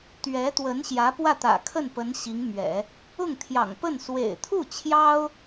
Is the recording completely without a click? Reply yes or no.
yes